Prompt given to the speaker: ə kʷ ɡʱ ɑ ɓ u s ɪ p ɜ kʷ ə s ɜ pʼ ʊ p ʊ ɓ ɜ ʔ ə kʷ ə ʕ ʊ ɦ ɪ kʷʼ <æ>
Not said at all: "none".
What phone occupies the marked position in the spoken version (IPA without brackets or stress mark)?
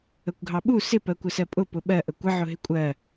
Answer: ɜ